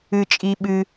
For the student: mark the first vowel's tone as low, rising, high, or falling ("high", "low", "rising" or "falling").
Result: low